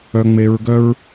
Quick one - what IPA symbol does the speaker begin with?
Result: œ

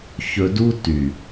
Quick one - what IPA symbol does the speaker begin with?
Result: ç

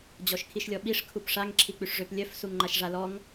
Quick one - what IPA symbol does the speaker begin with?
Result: d͡ʑ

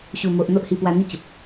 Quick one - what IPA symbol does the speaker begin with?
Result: ɕ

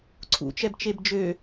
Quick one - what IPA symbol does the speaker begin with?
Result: ǀʰ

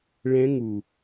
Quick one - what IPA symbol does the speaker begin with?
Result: ɭ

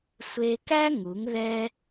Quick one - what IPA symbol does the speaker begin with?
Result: sʷ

